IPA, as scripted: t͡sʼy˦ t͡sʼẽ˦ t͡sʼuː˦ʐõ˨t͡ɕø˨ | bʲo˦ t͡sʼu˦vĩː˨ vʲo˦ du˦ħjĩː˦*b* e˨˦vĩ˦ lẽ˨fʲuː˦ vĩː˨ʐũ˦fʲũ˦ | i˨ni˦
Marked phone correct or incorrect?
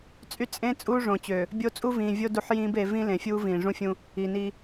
correct